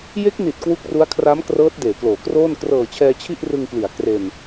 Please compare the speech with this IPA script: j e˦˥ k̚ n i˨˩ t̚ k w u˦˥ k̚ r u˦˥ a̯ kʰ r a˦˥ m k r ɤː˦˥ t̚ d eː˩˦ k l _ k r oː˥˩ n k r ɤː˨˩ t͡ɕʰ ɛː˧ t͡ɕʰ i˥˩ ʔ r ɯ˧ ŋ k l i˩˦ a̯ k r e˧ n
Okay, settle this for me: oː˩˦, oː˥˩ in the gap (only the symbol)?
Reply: oː˩˦